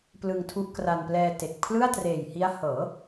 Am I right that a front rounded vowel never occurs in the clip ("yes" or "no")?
yes